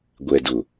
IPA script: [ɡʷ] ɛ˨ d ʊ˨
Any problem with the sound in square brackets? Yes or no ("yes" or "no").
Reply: no